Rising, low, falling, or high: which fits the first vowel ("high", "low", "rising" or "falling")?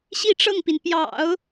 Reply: falling